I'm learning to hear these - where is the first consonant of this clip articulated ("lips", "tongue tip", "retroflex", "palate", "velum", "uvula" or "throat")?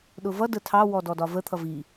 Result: tongue tip